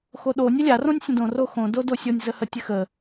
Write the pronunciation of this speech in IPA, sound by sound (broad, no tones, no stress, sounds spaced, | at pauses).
x o ɗ o nʲ ɘ lʲ a r õ nʲ sʲ ə̃ d õ r o x õ d o d o sʲ o nʲ z ə h ə tʲ ɘ x ə